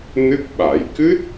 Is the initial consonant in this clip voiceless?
no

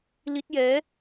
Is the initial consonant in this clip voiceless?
no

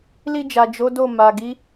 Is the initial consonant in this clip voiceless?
no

